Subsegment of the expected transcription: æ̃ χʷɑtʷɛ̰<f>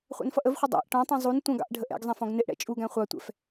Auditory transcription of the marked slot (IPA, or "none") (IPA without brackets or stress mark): f